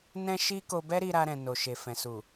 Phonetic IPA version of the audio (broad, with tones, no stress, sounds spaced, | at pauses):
n ɛ̃˦ ʃ i˦ k o˧ b ɛ˦ ɾ i˦ ɾ a˧ ɾ ɛ̃˨ n o˨ ʃ e˨ f ɛ̃˨ s u˨